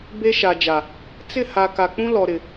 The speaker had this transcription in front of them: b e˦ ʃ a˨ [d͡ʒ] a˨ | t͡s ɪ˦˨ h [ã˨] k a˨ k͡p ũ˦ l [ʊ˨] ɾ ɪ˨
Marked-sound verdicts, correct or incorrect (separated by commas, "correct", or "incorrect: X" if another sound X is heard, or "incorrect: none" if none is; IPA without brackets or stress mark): correct, incorrect: a˨, incorrect: ɔ˨